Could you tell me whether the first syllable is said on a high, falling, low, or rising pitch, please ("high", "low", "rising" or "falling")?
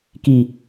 low